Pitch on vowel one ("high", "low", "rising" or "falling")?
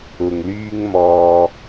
low